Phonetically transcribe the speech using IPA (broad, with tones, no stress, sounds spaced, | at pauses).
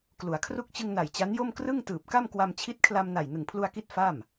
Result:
k l u˩˦ a̯ kʰ r u˥˩ k̚ t͡ɕ ɯ˧ ŋ n a˨˩ j t͡ɕ a˦˥ n j o˥˩ m k r ɯ˥˩ ŋ t ɯː˨˩ p̚ k a˥˩ m k w a˧ m t͡ɕʰ i˦˥ t̚ kʰ l a˧ m n a˨˩ j n ɯ˨˩ ŋ pʰ l u˧ a̯ k i˦˥ t̚ f a˥˩ m